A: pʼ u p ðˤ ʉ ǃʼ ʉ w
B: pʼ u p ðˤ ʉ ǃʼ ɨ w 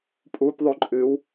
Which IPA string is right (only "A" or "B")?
B